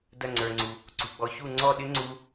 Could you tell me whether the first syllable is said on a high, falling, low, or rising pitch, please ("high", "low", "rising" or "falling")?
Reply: falling